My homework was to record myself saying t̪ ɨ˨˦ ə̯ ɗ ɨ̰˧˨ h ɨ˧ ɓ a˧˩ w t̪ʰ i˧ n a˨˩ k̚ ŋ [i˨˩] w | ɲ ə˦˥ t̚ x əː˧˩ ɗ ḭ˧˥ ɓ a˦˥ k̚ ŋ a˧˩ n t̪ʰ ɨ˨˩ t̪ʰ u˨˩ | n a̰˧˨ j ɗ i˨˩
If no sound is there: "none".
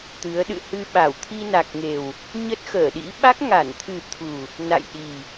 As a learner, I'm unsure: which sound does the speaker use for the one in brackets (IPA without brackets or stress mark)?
e˨˩